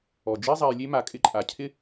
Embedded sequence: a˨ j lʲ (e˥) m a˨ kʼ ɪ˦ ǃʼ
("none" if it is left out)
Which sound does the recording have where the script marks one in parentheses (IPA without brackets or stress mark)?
e˥